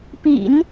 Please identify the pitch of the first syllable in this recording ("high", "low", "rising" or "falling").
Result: low